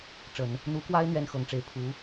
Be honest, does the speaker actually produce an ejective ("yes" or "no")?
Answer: no